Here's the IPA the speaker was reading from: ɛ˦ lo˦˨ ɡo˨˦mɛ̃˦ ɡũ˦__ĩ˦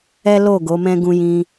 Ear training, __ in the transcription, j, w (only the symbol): j